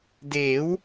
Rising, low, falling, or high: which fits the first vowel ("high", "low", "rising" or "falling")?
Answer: rising